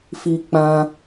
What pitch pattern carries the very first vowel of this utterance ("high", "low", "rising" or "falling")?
high